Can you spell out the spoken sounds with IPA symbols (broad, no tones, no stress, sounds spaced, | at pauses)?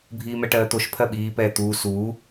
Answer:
bʱ iː m ɛ ʈ ɜː t̪ o ʃ pʰ ɜ ɓ iː p ɛː t̪ uː s uː